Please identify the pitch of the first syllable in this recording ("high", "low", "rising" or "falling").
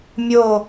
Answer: falling